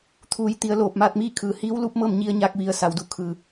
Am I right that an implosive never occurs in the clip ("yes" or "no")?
yes